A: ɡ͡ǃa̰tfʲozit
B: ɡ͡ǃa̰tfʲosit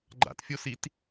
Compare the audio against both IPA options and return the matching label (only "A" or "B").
B